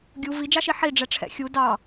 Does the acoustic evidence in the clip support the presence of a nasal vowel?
no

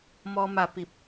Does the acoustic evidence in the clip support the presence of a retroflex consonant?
no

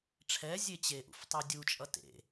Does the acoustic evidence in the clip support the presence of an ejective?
yes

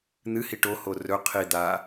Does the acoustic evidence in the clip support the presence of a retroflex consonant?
yes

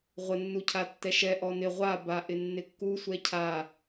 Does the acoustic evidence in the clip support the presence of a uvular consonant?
yes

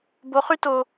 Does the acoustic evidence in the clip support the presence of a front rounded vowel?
yes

